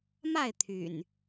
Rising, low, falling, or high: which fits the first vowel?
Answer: falling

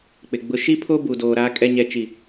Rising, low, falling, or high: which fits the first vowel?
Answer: low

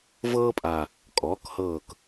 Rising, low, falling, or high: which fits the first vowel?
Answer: high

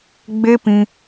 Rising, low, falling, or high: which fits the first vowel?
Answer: high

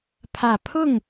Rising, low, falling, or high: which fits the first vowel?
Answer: low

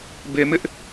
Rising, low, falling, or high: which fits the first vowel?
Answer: low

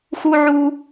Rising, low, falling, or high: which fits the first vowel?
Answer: high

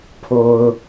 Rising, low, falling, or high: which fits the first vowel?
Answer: low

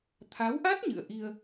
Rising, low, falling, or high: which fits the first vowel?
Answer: rising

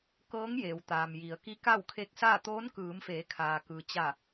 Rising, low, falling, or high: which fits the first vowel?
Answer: rising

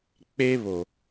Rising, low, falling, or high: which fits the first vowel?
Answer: high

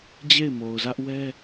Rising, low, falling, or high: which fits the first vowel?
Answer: falling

